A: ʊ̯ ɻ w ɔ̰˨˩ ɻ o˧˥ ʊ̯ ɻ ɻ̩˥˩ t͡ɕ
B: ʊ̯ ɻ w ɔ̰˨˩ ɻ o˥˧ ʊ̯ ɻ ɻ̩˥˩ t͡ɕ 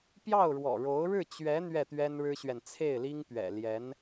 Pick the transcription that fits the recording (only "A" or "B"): A